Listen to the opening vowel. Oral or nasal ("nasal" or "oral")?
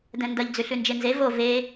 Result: nasal